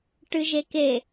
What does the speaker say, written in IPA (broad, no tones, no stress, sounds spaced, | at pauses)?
ʈ ɨ ʒ e k e